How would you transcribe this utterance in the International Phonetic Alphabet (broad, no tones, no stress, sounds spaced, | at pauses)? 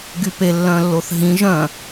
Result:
ɡ y p e lː œ̃ lː o θ ɦ ĩ ʒ œ̃